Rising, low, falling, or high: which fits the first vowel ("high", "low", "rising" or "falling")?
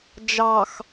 low